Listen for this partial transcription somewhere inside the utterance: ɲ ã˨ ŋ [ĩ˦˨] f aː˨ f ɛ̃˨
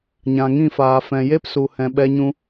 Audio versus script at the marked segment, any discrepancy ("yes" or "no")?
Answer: no